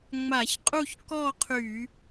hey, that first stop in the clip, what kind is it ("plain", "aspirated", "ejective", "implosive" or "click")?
ejective